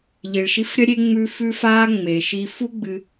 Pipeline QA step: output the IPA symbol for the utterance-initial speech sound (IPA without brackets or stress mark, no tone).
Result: ʎ